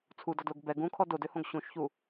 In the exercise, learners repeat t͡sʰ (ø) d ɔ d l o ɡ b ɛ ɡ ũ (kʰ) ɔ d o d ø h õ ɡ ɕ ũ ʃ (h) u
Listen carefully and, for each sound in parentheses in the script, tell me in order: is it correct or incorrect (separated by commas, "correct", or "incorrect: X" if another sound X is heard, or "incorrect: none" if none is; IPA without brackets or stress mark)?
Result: incorrect: u, correct, incorrect: ç